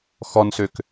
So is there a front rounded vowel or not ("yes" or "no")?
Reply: yes